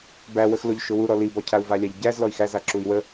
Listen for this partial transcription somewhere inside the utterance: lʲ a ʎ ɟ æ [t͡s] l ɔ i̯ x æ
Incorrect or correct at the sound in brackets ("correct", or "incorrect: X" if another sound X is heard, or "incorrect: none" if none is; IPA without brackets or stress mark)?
incorrect: z